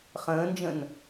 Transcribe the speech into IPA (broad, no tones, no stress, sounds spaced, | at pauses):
χ ə̃ː n d͡ʒ ə̃ n